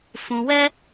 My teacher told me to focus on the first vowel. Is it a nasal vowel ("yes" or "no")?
yes